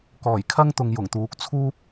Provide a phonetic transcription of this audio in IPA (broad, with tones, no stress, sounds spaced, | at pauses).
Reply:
k ɔː˨˩ j kʰ ɐ˥ ŋ t̪ ʊ˨ ŋ j ʊ˨˩ ŋ t̪ uː˨ k̚ t͡sʰ uː˥ p̚